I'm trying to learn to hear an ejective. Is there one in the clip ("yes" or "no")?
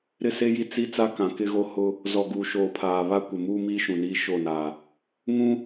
no